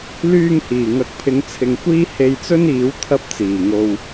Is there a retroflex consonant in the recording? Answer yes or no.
no